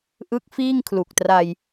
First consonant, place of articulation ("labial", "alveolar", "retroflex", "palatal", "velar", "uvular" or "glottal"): glottal